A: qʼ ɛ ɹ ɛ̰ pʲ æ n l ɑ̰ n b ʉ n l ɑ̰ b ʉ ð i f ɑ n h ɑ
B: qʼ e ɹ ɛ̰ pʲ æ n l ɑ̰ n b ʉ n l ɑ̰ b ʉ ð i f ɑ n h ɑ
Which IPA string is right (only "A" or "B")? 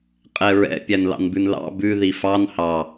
A